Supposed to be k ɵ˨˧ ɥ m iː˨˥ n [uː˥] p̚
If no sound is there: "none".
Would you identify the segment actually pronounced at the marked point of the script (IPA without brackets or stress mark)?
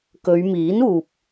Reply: uː˨